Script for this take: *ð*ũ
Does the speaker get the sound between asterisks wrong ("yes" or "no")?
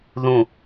no